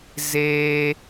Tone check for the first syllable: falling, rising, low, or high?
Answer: high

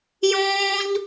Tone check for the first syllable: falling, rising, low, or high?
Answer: high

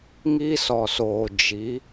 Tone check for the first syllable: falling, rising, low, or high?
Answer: high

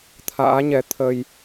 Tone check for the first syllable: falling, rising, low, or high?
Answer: rising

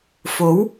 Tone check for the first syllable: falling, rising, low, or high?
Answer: rising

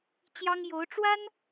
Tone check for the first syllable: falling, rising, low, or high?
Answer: high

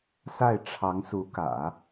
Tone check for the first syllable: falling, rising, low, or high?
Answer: falling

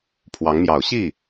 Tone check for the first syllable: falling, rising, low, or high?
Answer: rising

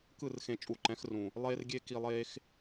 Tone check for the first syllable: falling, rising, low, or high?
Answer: falling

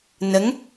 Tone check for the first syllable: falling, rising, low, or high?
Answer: rising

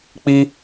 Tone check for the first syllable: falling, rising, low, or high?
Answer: high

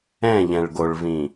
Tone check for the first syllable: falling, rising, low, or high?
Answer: falling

